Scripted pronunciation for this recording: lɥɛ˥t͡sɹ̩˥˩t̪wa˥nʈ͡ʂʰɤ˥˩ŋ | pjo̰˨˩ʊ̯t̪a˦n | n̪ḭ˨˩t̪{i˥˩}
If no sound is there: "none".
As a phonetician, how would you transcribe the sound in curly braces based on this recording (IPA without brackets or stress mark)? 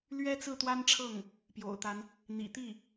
i˥˩